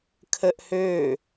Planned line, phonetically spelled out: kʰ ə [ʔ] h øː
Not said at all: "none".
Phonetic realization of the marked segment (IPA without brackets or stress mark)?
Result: ʔ